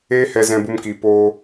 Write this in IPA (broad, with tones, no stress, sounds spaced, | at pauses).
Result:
eː˦ h ɛ˧ z ɛ̃˧ b u˧ m k iː˨ p oː˧